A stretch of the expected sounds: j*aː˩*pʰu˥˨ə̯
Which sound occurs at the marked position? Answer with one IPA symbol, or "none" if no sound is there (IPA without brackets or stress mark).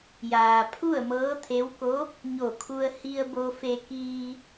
aː˩